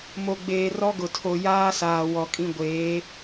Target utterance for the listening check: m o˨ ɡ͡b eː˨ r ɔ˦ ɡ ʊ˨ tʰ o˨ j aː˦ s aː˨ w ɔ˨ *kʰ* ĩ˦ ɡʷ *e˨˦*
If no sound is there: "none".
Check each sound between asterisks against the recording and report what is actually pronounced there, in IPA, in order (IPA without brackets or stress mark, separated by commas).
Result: kʼ, eː˨˦